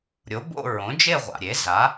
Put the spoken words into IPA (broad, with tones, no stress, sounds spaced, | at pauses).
ɾʲ o˩˥ b o̰˥˧ ɹ õ˩˥ d͡ʒ e˥˧ ʁʷ a̰˩ ɾʲ e˩˥ z a˩˥